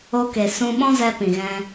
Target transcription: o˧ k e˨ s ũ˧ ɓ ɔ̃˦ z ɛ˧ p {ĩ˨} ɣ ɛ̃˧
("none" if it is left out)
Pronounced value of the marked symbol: ĩ˨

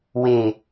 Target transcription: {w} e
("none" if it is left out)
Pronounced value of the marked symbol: w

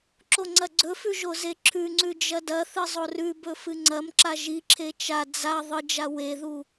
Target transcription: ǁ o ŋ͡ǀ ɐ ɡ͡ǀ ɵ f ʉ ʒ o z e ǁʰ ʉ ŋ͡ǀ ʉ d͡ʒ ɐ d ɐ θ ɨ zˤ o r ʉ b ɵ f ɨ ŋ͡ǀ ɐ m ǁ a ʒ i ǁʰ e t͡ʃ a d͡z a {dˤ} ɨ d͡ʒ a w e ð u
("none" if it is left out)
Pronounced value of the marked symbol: ðˤ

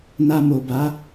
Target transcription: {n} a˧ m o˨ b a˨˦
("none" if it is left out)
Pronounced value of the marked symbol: n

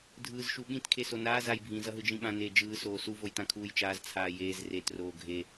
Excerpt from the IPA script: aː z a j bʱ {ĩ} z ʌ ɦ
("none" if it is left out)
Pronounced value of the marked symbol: ĩ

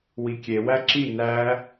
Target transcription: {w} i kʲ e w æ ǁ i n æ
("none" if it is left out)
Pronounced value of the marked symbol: w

